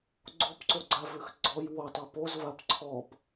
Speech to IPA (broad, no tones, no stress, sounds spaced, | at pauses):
ɡ͡ǀ o p ǀ o ɡ͡ǀ a v ʉ x ɡ͡ǀ ɔ j w o tˤ o p o z v a p ǀʰ ɔ p